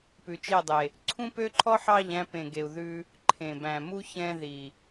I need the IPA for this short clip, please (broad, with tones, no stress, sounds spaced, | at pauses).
p ʉ˨ t͡ʃ e˦˨ dˤ e˨ | ǀʰ ũ˦ p ø˦ ǃʰ ɔ˦ ħ ɑ˦˨ ʎ æ̃˧ p ẽ˨ ɡ e˨ u̯ ð ʉ˧ | ǃʰ ẽ˨ b æ̃˨ m u˦ ç ɛ̃˧ ð i˨